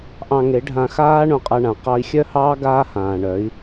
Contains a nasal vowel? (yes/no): yes